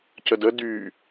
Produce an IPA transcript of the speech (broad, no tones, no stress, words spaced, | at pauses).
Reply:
cədə dy